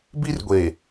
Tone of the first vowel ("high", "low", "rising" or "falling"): high